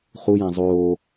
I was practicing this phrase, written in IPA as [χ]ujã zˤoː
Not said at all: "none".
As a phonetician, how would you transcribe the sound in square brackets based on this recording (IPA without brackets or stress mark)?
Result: χ